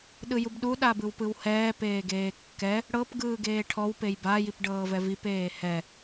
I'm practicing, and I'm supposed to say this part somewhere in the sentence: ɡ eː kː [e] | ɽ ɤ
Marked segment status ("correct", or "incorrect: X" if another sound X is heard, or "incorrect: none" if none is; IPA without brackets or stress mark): incorrect: ɛ